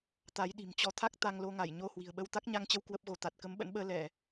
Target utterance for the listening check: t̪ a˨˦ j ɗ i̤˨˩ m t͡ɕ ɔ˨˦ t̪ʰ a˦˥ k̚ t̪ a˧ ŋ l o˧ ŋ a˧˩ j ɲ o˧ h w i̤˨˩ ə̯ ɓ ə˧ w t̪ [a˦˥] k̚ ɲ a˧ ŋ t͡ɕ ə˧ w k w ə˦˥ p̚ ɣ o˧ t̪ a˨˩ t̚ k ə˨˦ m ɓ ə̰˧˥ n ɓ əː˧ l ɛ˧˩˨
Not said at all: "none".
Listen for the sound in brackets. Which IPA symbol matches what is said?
a˦˥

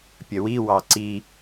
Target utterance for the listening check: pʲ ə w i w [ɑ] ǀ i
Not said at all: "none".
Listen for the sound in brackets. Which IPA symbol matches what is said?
ɑ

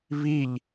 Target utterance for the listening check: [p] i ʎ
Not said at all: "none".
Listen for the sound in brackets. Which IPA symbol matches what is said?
β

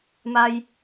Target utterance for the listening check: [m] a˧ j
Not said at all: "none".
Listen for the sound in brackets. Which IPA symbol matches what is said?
m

